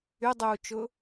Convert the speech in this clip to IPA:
y dˤ uː t͡ʃ ʊ

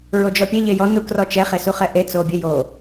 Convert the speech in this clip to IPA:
ɹ o d͡ʒ ɔ pʲ e ʎ e j ɔ n u k r ɔ t͡ʃ ɛ χ e s u χ ɛ ʔ e t͡s o bʲ ø j o

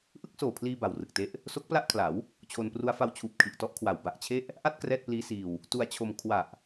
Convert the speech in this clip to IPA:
ʔ ɯ˥˩ k̚ s oː˨˩ pʰ l iː˧ b a˨˩ w r ɯ˨˩ k̚ t e˦˥ ʔ | s o˦˥ k̚ p l a˥˩ ʔ kʰ l a˩˦ w | t͡ɕʰ o˧ n p r u˦˥ a̯ f a˦˥ w t͡ɕʰ uː˨˩ p̚ kʰ i˨˩ ʔ t ɔ˦˥ ʔ kʰ w a˩˦ w b a˨˩ ʔ t͡ɕʰ e˥˩ ʔ | ʔ a˥˩ t̚ k r ɛː˥˩ t̚ p l iː˦˥ s iː˧ w | t u˧ a̯ t͡ɕʰ o˧ m kʰ w a˨˩ ʔ

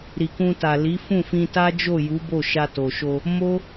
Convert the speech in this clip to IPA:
ɾ i˨ k ũ˧ t a˨ l i˨˦ f ũ˦˨ f ĩ˧ t a˦ d͡ʒ o˦˨ j u˨˦ b o˦˨ ʃ a˧ t o˨ ʃ o˧ | m o˦

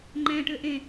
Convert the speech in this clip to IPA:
ŋ͡ǃ ɛ̃ ʈ ʏ ʔ ẽ

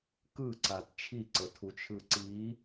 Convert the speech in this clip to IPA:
k ɯ ǀ a t t͡ʃʰ i ǀ ɤ tʰ u t͡ʃʰ ɯ ǀ i

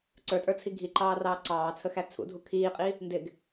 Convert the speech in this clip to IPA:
ǀ ə˞ tʼ ə˞ t͡sʰ i ɡʱ i ǃ ɑː r ɑː ǀ ɑː t͡sʰ ə x æ t͡sʰ ṵ dʱ u kʰ iː qʼ i | n d ɪ ɡ

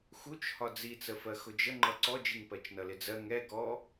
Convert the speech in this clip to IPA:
x u t͡ʃ h ɒ d͡z i t͡s ə f ɜ x ʊ d͡ʒ ə ŋ͡ǃ ʌ ǀ ɔ d͡ʒ i ŋ p ɜ t͡ʃ n ʌ l ɪ d͡z ɜ ŋ ɛ ɡ ɔ

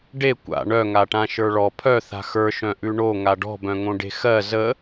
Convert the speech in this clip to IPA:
ɖ e kʷ a̰ ɳ œ ŋ a ʈ ã ʃ ə˞ ɭ ɔ pʰ œ θ a̤ x ə˞ ʃ œ̃ ʔ ʉ ɳ o ŋ a ɖ ɔ̤ b œ̃ ŋ õ ɖ e̤ x ɜ z ə

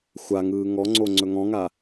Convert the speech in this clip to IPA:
xʷ a ŋ ɯː ŋ ɔ ŋ͡ǀ o ŋ͡ǀ ɵ ŋ ɔ̃ ŋ a

